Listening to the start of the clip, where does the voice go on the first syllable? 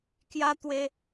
high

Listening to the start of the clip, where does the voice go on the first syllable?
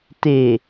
low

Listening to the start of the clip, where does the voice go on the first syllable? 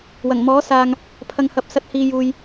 low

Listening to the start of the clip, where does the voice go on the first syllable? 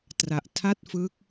low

